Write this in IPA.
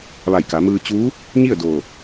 ʋ a˧˩ j k a˩˧ m ɯː˧ t͡ɕ uː˧˥ | ɲ i˥˨ ə̯ d oː˧˩

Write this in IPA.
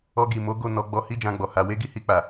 ɔ˧ ɡ i˨ m o˨˦ ɡ o˦˨ n ɔ˨˦ ɡ͡b ɔ˧ h i˦ d͡ʒ ã˧ ɡ͡b ɔ˨ h a˧ w e˦ ɡ i˦ h i˧ k͡p a˨

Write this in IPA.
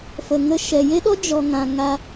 f ə˨ ŋ ə˧ ʃ ɛ˨ j e˦ ɗ ɔ˦ d͡ʒ ɔ˨ ŋ ã˨ ŋ a˧

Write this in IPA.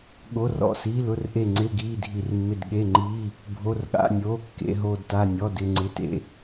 ɠ o˧˥˧ r ɔ̰˦˨ s iː˧˥˧ l ʊ˧˥˧ r ʔ e˦˨ ŋ͡ǀ ɪː˧˥˧ ɡ iː˧˥˧ dʱ i˦˨ r mː ɪ˦˨ d ɠ e˧˥˧ ŋ͡ǃ iː˧˥˧ | bʱ o˧˥˧ r ɠ a̰˧˥˧ nʲ oː˧˥˧ kː ḛ˧˥˧ ɦ oː˦˨ d t a˦˨ nʲ ɔ˧˥˧ d ɪ˦˨ ŋ͡ǀ ɪ˧˥˧ t ḛ˦˨

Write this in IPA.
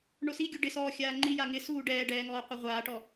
ɳ o s i ɡʲ o ɖ ɪ s ɔː xʲ aː ŋ͡ǃ i j a ŋ ɪ s uː ɖ ɛː ɖ ɛː ŋ ɔː qʷ e ʁʷ aː ʈ ɔ

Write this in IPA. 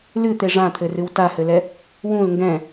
l ɨ t̪ e ʐ ã t̪ʰ ɘ r ɨ w t a h ɘ l ɛ | w ũ l ŋ ɡ ɛ̃

